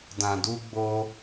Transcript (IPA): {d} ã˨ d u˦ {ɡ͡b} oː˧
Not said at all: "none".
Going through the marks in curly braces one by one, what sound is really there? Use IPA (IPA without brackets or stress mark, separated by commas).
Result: d, ɡ͡b